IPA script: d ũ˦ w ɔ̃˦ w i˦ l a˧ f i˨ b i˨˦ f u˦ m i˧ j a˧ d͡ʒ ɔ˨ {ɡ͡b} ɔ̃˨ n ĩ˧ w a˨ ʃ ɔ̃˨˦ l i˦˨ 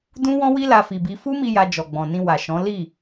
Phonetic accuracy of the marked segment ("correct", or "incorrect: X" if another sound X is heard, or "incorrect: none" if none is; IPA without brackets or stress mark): correct